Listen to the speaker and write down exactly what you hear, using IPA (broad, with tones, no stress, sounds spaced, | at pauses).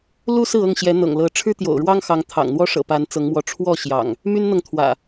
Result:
l u˦ s ɹ̩˥˨ ɤ˥˨ ŋ ɕ j ɛ˨˦ n̪ ɤ̰˨˩ ŋ l ɤ˨˦ ʈ͡ʂʰ ɻ̩˦ t̪ j o̰˨˩ ʊ̯ ɻ w ɑ˦ ŋ x ɑ˨˦ ŋ t̪ʰ ɑ̰˨˩ ŋ n̪ w ɔ˦ ʂ ɤ̰˨˩ p a˨˦ n t͡s ɤ˨˦ ŋ m w ɔ˨˦ ʈ͡ʂʰ w ɔ˥˨ ɕ j ɑ̰˨˩ ŋ | m y˦ n n̪ ɤ˨ ŋ t̪ʰ w ä̰˨˩